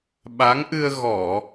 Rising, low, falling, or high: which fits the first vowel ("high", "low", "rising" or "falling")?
rising